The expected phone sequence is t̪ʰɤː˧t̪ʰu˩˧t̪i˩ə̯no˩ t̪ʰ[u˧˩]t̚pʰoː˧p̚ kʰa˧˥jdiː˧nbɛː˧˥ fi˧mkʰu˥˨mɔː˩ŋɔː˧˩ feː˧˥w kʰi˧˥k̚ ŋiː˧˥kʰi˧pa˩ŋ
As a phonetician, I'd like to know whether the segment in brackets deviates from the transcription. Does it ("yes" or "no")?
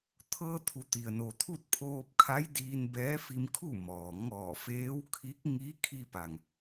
yes